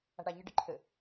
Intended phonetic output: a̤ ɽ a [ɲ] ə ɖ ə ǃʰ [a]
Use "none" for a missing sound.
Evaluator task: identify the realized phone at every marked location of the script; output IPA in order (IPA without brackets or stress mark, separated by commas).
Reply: ɲ, ə